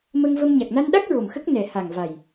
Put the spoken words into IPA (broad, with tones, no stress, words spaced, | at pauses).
mə˧ŋvə˧m ɲa˨˩k̚na˧nɗa˦˥k̚ ɹo˨˩mxə˦˥k̚ nɛ˨˩ha˨˩ŋva˨˩j